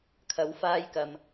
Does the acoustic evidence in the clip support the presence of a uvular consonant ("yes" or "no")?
no